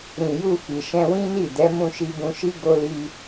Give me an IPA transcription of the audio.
ɾĩ˨ju˧ fi˨ ʃɛ̃˧wĩ˦ni˦˨dɛ˨˦ mũ˧ʃi˧bũ˧ʃi˦ ɡo˧li˧

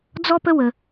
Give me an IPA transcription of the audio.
d͡zɔ˦pə˦ wə˧

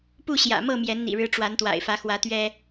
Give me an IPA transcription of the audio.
pu˥˨ɕjä̰˨˩mɤ˥˨ mjɛ˨˦nn̪ḭ˨˩ɻɻ̩˨˦ ʈ͡ʂwa˨˦nt̪wa̰˨˩ɪ̯fä˨˦xwä˨˦ t̪ɥɛ˦

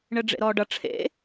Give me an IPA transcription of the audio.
ɳɘɖ͡ʐḛɾɔːɖʌ ʈ͡ʂʰḛ

